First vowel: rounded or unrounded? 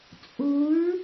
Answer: rounded